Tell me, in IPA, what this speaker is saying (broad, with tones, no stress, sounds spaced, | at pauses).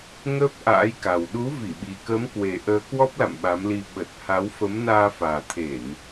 ŋ əː˦˥ p̚ ʔ a̰ː˧˥ j k a˨˩ w ɗ u˨˦ v i˧˩ ɓ i˨˩ k əː˨˦ m k w e˨˩ ʔ əː˨˦ k w ɔ˦˥ p̚ l a̰˧˨ m ɓ a˨˦ m l i˧ ɓ ə˨˩ t̚ h a˨˦ w f ə˨˦ m n aː˧ f aː˨˩ t̪ʰ e˧˩˨ n